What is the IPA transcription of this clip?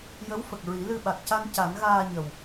j ə˧˥ w f ə˨˩ k̚ ɹ i˨˩˦ l ɨ˧ ɓ a˨˩ k̚ c a˧ n c a˨˩˦ n ɣ aː˧ ɲ ə˨˩ w

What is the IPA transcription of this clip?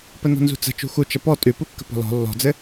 p ə n ɔ̤ n z ṳ t͡s ə̤ t͡ʃ ṳ x u t͡ʃ ə p ɔ tʼ ʉ p u kː ə̤ p ɔ̤ l ɔ̤ lː ɔ̤ d͡z ɘ

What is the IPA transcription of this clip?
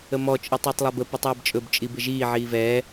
ə m ɔ t͡ʃʼ ɯ tˤ ʊː tˤ lˠ ɛ b ə p i tˤ ɛː b t͡ʃʼ ɵ b t͡ʃʼ i b ɪ ʒ iː ʕ iː v ɛː

